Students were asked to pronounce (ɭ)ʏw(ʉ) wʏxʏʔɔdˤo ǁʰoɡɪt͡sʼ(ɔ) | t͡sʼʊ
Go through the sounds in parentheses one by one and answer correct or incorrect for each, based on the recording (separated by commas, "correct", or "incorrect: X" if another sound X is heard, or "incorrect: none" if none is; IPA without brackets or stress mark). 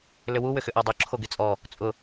incorrect: l, incorrect: u, correct